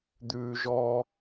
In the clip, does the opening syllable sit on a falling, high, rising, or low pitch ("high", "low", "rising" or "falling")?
low